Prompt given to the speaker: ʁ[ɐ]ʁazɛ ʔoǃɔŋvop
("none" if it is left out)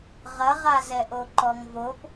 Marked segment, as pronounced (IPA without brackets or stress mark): ɐ